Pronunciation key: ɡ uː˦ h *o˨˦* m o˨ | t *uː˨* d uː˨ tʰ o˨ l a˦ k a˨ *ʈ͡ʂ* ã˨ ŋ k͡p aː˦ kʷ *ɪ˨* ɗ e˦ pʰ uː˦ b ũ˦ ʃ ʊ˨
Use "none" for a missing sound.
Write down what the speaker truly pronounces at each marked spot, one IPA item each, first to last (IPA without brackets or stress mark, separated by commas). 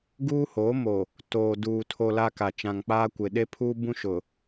o˨˦, oː˨, t͡ʃ, ɪ˨